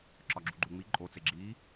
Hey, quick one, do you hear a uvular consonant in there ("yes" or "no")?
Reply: no